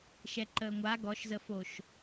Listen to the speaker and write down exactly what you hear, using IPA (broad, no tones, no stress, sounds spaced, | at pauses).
ʃ ɛ ǃ əː ŋʷ a ɡ ɔ ʃ z ə f o ʃ